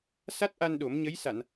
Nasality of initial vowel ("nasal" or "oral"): oral